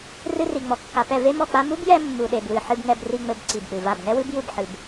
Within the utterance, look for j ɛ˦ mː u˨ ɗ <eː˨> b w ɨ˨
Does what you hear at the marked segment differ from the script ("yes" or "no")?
yes